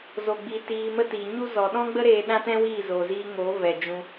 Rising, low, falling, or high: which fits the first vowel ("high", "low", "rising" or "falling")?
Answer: low